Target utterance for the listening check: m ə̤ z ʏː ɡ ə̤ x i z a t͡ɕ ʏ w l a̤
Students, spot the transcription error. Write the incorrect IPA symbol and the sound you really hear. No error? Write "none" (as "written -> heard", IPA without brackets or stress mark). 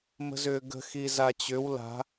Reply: none